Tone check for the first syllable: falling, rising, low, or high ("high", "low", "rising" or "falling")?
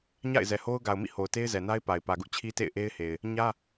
falling